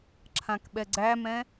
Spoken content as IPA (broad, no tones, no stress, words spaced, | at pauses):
ǁʰãkɓɛɡ͡ǀæmɛ̃